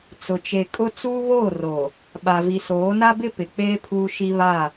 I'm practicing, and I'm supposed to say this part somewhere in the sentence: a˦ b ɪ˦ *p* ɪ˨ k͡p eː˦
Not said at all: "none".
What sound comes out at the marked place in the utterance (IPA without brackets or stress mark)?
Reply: p